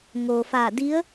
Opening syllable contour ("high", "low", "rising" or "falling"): low